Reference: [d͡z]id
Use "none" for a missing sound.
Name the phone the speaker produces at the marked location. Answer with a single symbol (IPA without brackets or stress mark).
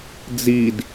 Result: d͡z